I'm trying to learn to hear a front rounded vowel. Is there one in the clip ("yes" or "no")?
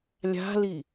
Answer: no